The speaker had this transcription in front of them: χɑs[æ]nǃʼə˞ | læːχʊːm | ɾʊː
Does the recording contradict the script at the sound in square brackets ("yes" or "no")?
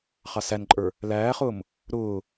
no